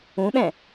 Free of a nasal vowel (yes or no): no